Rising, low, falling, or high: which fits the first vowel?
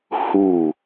falling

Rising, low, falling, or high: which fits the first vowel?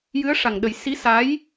rising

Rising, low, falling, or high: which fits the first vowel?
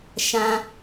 low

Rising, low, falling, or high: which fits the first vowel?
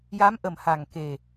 rising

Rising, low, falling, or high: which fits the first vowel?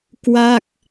falling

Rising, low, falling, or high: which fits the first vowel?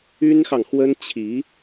high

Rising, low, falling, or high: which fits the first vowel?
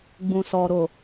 low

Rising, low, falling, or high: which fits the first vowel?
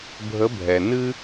rising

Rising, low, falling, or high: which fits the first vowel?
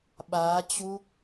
rising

